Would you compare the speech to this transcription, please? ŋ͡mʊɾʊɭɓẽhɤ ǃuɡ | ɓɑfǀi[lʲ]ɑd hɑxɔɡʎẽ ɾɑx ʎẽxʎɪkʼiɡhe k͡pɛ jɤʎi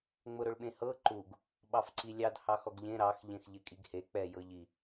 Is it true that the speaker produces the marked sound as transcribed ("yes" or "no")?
yes